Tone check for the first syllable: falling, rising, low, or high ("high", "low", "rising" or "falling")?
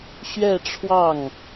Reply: falling